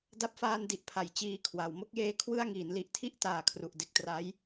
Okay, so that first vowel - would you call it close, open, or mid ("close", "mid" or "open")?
open